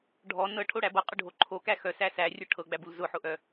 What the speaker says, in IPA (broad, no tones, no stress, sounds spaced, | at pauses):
ɖʱ ɔ n ɤ ʈʰ o ɽ æ b ɤ qʼ ʊ ɖʱ o ǃʰ o k æ x œ s æ s æ rʲ ʊ ʈʰ ɤ ɡ͡b æ b u l z ʊ ħ ʊ ʔ œ